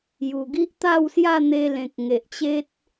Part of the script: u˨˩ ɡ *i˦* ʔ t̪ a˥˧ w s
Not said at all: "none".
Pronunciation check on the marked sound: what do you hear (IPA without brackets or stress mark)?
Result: i˦